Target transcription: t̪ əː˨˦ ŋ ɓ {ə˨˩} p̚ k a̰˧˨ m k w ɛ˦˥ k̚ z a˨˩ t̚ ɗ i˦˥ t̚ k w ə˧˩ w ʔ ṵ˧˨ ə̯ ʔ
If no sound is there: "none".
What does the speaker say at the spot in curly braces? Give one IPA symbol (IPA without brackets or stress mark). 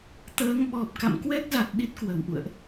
ɔ˨˩